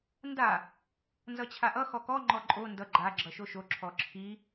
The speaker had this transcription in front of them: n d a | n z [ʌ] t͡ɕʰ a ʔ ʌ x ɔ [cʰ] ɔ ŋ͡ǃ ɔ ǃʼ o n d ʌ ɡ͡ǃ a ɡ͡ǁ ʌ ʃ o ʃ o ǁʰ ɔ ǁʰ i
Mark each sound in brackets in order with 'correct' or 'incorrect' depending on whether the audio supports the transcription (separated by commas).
correct, incorrect